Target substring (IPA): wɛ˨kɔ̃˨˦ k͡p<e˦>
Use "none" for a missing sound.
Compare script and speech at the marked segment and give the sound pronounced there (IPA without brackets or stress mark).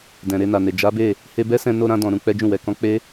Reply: e˦